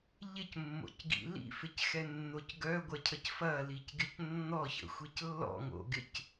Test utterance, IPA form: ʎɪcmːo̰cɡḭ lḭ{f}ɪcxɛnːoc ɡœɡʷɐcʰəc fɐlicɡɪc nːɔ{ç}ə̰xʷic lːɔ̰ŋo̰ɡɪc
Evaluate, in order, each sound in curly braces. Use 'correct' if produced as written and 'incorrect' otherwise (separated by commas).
correct, correct